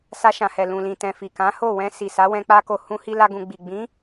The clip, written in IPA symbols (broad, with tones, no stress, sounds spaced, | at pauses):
s a˧ ʃ ã˨ h ɛ˨ l ũ˨ l ĩ˨ t ɛ̃˨ f i˨ k ã˨˦ h o˦˨ w ɛ̃˧ s i˨ s a˨˦ w ɛ̃˧ k͡p a˦ k o˧ h ũ˧ h i˧ l a˦ ɡ ũ˧ ɡ͡b i˨ ɡ͡b ĩ˨˦